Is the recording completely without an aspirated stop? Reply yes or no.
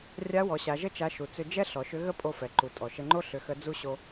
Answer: yes